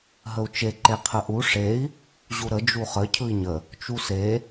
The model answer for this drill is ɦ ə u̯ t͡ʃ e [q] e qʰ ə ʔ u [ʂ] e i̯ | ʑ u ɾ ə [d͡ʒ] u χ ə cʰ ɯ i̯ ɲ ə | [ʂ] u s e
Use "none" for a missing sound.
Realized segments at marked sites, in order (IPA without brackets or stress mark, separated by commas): ǃ, ʂ, d͡ʒ, t͡ʃ